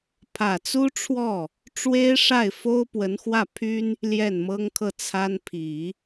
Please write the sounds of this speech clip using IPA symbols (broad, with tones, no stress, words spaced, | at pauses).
pʰä˨˩t͡su˥ʈ͡ʂʰwɔ˥˩ | ʈ͡ʂwe˥ɪ̯ʂa˥˩ɪ̯fo˥ʊ̯ pwə˧˥nxwä˥˩pʰy˥n | ljɛ˥˩nmɤ˥ŋkʰɤ˥˩ t͡sʰa˥n pʰi˨˩˦